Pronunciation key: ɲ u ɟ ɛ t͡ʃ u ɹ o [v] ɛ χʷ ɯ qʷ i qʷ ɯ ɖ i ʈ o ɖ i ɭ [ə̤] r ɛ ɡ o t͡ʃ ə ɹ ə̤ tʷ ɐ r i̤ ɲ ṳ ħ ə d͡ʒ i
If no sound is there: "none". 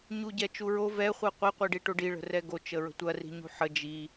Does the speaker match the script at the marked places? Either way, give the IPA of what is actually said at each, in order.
v, ə̤

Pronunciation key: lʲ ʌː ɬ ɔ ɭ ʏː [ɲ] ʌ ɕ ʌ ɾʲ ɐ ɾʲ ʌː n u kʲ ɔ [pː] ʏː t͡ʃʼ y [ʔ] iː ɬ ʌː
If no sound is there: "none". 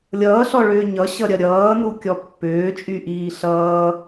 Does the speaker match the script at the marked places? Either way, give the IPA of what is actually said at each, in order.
ɲ, pː, ʔ

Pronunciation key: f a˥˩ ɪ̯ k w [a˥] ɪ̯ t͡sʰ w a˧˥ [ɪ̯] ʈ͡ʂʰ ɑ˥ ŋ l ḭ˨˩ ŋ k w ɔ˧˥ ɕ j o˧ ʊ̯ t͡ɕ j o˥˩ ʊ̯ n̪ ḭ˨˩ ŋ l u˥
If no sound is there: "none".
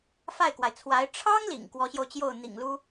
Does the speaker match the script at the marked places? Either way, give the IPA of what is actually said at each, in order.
a˩, ɪ̯

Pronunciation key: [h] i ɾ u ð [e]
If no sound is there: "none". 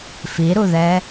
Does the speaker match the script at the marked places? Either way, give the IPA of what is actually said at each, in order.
f, ɛ

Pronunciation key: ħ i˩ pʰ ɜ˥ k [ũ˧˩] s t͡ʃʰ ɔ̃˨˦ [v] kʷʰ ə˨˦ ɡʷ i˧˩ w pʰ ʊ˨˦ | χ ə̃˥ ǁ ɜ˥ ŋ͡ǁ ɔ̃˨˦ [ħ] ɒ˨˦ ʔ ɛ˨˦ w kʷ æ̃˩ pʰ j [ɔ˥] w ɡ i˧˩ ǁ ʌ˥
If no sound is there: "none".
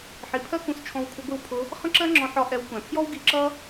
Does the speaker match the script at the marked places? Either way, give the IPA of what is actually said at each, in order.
ũ˧˩, w, ħ, ɔ˥

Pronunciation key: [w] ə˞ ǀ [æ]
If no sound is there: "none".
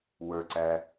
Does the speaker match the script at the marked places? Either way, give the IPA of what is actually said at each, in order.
w, æ

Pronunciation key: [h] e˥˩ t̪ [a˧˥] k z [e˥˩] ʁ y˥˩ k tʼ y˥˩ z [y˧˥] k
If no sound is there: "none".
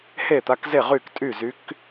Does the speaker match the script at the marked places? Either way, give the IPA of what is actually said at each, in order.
h, a˧˥, e˥˩, y˧˥

